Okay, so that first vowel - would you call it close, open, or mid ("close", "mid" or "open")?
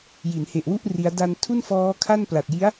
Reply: close